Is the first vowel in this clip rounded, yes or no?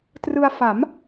no